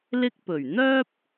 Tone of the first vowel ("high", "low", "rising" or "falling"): high